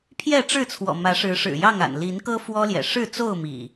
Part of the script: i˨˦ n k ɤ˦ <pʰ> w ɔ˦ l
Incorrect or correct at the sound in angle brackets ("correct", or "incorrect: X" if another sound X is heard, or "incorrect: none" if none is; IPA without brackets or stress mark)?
incorrect: f